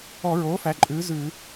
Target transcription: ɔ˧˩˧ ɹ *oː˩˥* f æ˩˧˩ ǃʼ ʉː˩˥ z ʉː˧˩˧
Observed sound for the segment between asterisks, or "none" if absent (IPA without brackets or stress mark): oː˩˥